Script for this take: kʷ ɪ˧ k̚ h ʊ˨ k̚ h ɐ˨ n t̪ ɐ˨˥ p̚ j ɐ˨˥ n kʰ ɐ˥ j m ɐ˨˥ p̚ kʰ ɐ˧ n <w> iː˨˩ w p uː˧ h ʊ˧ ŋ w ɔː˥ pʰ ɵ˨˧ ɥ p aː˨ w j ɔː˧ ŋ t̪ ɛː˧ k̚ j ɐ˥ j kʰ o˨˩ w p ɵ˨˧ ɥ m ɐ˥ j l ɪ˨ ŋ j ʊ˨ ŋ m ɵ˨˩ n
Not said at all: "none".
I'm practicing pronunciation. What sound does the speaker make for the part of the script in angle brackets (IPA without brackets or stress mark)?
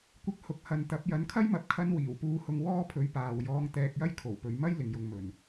w